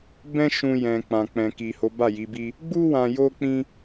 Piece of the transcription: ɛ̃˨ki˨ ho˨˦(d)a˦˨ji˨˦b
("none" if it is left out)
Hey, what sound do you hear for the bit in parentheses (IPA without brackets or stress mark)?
b